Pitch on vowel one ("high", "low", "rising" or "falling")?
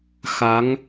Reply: rising